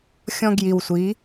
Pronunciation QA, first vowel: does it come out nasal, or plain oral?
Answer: nasal